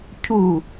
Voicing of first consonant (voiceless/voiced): voiceless